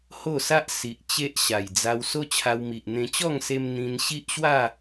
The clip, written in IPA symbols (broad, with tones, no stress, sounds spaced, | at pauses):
h o˥˧ s a˦ ʔ s i˨ ʔ t͡ɕ e˦ ʔ ɕ a˨˩ j d͡z a˧ w s o˦ t͡ɕʰ a˧ w m i˨ ʔ n̪ ẽ˧ t͡ɕ ɔ˥˧ ŋ s e˧ m n̪ ĩ˧ n ɕ i˦ ʔ ɕ w a˥˧